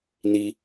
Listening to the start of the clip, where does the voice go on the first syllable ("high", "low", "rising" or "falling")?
high